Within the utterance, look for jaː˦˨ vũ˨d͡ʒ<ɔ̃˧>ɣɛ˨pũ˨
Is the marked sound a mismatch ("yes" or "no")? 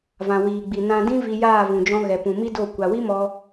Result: no